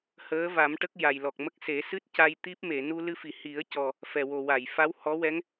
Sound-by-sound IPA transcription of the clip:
h əː˧˥ v a˨˩˦ m ʈ ə˦˥ k̚ j a˨˩ j l ɔ˨˩ k̚ m ə˦˥ k̚ s e˨˩˦ s ɨ˦˥ t̚ c a˧ j t̪ i˦˥ p̚ m e˨˩˨ n u˧ l ɨ˧ f i˨˩˨ h i˨˩˦ ə̯ c ɔ˨˩ | f ɛ˨˩ w o˨˩ w a˨˩˨ j f a˧˥ w h ɔ˧˥ w ɛ˧˥ ŋ

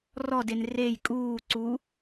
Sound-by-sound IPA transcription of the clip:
r ɔ d e n r e j kʼ uː ǀ u

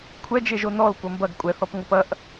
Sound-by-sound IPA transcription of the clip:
kʷʰ ɛ d͡ʒ e ʒ o n ɔ l kʷ ɐ m b ɐ ɡ kʷʼ ɛ θ ɔ p ŋʷ ɤ p ɐ ʔ

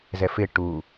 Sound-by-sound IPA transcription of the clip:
z ɛ f ɪ ʈ u

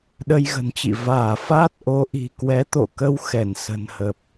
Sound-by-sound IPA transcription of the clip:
ɗ ə˧ j ɣ ə̤˨˩ n t͡ɕ ḭ˧˨ v aː˧˩ f aː˦˥ t̚ ʔ o˨˦ ʔ i̤˨˩ k w ɛ˨˦ t̪ o̰˧˨ k ə˧ w x ɛ˧˩ n s ə̤˨˩ n h ə˨˩ p̚

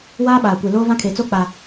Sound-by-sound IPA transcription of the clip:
w aː˦ ɓ aː˨ kʷ e˨ l oː˦ v ã˦ kʰ e˨ t͡s o˦ k͡p a˨

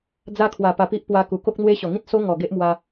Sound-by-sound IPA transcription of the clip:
d͡z a˧ kʰ w a˨˩ p a˨˩ p i˦ ʔ p w a˧ k u˨˩ k o˦ k̚ n̪ w e˦ ɕ ɔ˨˩ ŋ ĩ˦ t̚ s o˦ ŋ ɔ˨˩ ɡ e˦ ʔ m w a˧

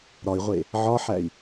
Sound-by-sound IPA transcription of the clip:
ɾ ɒ i̯ ʁʷ e | ʕ ɒ ħ æ i̯

